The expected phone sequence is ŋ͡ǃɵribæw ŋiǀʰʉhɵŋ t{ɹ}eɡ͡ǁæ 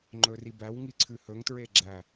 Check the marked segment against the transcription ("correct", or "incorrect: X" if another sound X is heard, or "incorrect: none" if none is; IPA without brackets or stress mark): correct